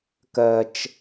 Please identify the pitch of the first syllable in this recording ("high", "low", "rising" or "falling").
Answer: high